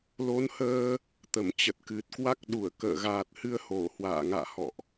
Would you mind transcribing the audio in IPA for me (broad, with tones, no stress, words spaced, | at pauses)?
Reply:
lo˨˦nhəː˧ | t̪ə˧˩mt͡ɕə˨˩t̚kɨ˨˩t̚kwa˦˥k̚ ɗu˧˩ə̯ kə̰ː˧˨ɣaː˨˩t̚hɨ˧ə̯ ho˧˩hwa̰ː˧˨ ŋa̰ː˧˨hɔ̰˧˨ʔ